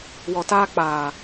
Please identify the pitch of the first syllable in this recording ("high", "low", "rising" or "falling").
low